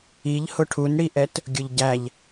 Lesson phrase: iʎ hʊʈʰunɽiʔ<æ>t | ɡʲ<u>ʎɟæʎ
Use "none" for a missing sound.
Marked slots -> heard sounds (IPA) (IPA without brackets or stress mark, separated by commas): ɛ, ʊ